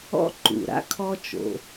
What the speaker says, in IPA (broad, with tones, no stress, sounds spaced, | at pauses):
ɔ̰˥ ǃ ṵ˩ ɾ a̰˥ kʰ ɔ˥ t͡ʃ o̰˩